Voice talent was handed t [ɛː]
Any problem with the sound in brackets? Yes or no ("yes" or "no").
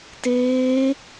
yes